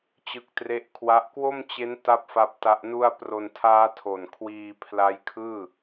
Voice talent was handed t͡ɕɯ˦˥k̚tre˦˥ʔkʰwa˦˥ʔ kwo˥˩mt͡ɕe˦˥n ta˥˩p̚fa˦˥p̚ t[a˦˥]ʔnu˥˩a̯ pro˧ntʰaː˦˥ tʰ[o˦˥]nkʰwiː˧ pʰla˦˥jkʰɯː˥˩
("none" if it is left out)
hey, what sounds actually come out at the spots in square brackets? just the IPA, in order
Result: a˦˥, o˨˩

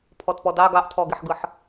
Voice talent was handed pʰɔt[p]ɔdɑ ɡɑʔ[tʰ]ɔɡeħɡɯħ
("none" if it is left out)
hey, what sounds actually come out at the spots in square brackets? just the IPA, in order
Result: p, tʰ

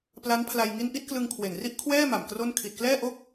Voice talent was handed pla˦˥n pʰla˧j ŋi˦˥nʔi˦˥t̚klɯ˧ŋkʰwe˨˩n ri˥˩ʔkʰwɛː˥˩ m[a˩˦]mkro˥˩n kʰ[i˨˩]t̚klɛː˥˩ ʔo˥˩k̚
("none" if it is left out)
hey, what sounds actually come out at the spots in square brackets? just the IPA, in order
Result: a˨˩, i˨˩

